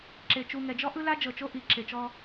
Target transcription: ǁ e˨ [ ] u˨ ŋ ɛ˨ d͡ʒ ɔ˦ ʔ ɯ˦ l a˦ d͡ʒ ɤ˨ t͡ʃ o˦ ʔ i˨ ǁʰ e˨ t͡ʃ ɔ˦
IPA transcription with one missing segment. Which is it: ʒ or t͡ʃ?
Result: t͡ʃ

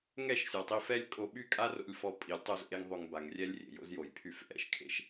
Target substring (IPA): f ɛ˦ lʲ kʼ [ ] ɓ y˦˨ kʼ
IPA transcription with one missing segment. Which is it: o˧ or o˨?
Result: o˧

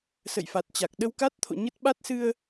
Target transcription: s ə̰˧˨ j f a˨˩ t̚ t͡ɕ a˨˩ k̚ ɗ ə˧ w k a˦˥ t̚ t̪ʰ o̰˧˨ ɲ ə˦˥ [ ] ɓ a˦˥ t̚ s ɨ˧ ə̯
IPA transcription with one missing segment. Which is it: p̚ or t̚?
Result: t̚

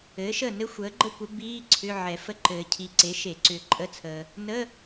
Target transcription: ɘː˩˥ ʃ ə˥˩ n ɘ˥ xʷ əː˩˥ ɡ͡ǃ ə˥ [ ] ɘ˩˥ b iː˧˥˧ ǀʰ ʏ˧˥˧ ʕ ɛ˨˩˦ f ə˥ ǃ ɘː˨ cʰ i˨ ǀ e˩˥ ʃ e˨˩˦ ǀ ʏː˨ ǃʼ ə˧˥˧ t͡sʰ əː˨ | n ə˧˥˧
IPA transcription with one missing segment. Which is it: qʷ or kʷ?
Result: kʷ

